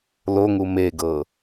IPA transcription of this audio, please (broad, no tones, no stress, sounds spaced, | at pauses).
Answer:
l o ŋ u m e ɡ ɤ